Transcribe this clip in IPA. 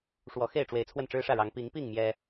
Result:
ʂwɔ˨˦xe˥˨ɪ̯ʈ͡ʂwe˨˦ɪ̯ t͡sʰwə˥˨nʈ͡ʂɻ̩˦ʂä˥˨ɻɑ˨˦ŋ pi˨˦ŋpi˥˨ŋ mjɛ˦

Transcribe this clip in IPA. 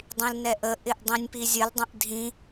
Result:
dˤĩlnɛʔə ʔɪʔdˤĩnʲpizʲəl dˤə̃ʔdʱĩ

